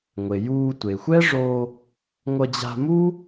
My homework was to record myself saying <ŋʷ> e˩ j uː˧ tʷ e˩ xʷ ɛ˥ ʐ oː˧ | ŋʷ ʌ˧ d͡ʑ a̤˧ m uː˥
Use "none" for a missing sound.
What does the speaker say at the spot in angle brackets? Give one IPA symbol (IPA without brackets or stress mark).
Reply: ŋʷ